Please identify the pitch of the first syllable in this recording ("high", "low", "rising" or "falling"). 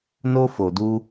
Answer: high